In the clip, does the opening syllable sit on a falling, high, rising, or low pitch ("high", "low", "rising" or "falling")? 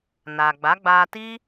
low